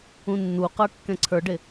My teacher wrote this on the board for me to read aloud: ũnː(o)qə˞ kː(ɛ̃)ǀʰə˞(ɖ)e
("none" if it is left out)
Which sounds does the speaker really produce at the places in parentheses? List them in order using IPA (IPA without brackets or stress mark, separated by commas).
u, ɛ̃, ɖ